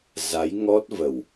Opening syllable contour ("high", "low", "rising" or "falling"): rising